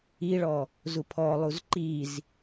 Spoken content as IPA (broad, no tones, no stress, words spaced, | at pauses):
iɭɔ | zupʰɔlˠuz ǃiz